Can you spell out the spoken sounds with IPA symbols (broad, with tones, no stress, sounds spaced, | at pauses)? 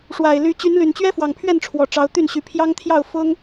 ʂ w a˨˩ ɪ̯ l y˨˦ t͡ɕ y˨˦ n l y˨˩ n t͡ɕ ɥ ɛ˦ f w ɑ˨˩ ŋ pʰ ɥ ɛ˥˨ n ʈ͡ʂʰ w ɔ˨˩ ʈ͡ʂ ɑ˨˦ ʊ̯ t̪ y˥˨ n ɕ y˨˦ pʰ j ɑ˦ ŋ t̪ʰ j ɑ˥˨ ʊ̯ f ʊ˦ ŋ